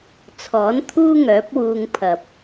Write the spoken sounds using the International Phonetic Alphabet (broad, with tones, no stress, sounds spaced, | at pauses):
t͡sʰ ɔː˨˥ n t̪ʰ uː˥ ŋ œː˨˥ p̚ w uː˧ ŋ pʰ ɐ˨ p̚